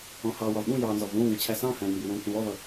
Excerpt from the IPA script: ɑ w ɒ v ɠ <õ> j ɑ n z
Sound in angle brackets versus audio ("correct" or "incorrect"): incorrect